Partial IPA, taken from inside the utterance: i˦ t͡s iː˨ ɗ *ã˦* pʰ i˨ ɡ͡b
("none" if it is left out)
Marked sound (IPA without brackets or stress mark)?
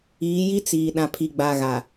ã˨